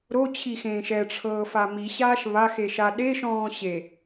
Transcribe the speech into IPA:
ɾ o t͡ɕʰ i x ẽː ʃ ɛ ʈ͡ʂʰ ɤː f a m i ɕ aː ʃ β a x e ʃ a ɗ e ʃ ɔ̃ː ɕ e

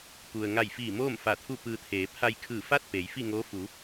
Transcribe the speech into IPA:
p u˩ ə̯ ŋ a˧˩ j f iː˧˩ m oː˥˨ m f a˧˩ t̪ʰ u˥˨ p ɯː˧ t̪ʰ eː˩˧ pʰ a˧ j kʰ ɯː˧˩ f a˥˨ t̚ p eː˩˧ j f i˥˨ ŋ oː˧˥ f u˩˧

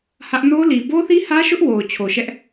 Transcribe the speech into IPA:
h ä˦ ʔ n o˦ l i˨ b o˦ θ i˦ h ä˦ ʃ ʊ˦ ʔ w o˨ ʊ̯ t͡ɕʰ o˨ ʃ ɛ˦ ʔ

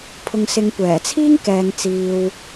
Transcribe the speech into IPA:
pʰ ʊ˨ ŋ s ɪ˨˧ ŋ kʷ ɛː˨˩ t͡sʰ iː˥ ŋ k ɛː˨ ŋ t͡s iː˨ w

